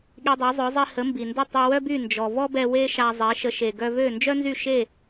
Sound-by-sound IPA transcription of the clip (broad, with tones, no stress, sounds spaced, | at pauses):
ɠ i˧ dˤ œ˩˥ zˤ œ˩˥ zˤ i˧ h ə˩˥ m b i˩ n d ə˥˩ tˤ e˧ w œ˥ b y˥˩ n d͡ʒ ɔ˩ v ɔ˥ b ɛ˧ w e˥ ʃ a˧ zˤ e˩˥ ʃ ə˩˥ ʃ e˩ ɡ œ˧ v ø˥˩ n d͡ʒ œ˥ n z y˥˩ ʃ e˥˩